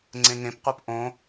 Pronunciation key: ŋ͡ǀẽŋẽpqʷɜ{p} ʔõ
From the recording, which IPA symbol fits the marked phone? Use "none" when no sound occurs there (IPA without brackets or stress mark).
p